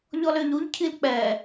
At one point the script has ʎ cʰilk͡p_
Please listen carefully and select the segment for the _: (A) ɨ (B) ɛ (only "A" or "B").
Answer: B